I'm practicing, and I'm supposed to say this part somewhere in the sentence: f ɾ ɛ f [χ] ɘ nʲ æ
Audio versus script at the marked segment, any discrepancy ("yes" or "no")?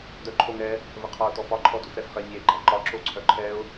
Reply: no